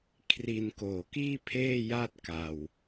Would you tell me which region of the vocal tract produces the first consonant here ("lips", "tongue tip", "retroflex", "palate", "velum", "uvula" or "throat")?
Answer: velum